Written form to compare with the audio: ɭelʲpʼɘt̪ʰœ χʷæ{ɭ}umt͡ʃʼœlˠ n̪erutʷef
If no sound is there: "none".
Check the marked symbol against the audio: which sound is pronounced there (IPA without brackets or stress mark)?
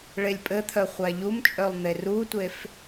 ʎ